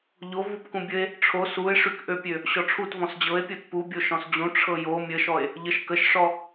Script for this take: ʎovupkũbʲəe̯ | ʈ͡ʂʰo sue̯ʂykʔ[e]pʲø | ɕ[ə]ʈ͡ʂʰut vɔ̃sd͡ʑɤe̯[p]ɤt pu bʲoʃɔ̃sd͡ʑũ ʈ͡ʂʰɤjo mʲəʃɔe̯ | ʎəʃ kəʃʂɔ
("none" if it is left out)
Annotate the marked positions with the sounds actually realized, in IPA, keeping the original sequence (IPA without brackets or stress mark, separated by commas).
ø, ɔ, pʲ